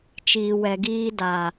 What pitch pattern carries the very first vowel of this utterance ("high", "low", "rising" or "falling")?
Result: low